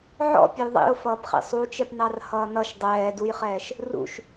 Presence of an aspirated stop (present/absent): absent